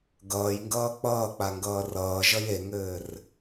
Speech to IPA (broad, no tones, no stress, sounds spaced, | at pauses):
ɡ ʌː j ŋ ɡ ʌː k͡p ʌː k͡p a ŋ ɡ ʌː r ʌː ʒ ʌ j e ŋ ɘː r